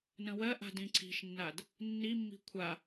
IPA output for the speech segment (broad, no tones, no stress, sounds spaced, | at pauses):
n ə̃ w ɜ ʔ a̤ d ĩ ǀʰ i̤ ʃ nː a d | nː i mː i̤ kʷʰ a